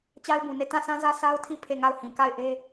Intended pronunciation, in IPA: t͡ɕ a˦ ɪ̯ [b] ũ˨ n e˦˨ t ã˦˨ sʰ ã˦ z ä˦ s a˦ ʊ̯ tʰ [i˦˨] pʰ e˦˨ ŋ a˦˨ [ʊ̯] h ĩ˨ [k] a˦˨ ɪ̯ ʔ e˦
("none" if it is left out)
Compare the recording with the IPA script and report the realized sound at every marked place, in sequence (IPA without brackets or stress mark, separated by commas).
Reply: b, i˦˨, ʊ̯, k